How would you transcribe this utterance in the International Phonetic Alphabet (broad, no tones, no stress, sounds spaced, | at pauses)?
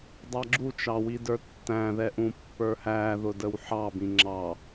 dˤ ɑ ɡ͡ǁ u t͡ʃ ɑ w i d ə˞ tː æ̃ ð ɛ ʔ ũ pː ə˞ h æ ð ʊ d ə w ħ ɑ b ĩ ŋ͡ǁ ɑ